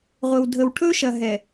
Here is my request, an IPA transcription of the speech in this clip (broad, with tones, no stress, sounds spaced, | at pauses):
ʁʷ ɘ˨ w dʱ ə˨ w ʈʰ ɵ˦ ʃ ɐ˨ ɦ ɛ˨